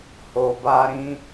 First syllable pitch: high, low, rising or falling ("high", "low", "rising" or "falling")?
low